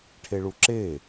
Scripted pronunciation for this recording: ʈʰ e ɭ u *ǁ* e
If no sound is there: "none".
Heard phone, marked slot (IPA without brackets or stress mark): ǁ